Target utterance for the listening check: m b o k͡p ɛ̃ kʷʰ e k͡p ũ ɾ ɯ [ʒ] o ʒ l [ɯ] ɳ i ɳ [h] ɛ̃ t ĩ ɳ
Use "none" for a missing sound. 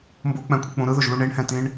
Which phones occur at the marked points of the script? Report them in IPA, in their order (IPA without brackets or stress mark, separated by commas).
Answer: ð, u, h